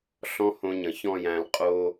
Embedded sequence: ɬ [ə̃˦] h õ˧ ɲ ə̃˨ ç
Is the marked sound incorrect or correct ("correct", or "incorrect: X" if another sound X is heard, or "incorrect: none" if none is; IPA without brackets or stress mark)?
incorrect: ɔ̃˦